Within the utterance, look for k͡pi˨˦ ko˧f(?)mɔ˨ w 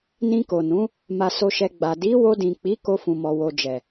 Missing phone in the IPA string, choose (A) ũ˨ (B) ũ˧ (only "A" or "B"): A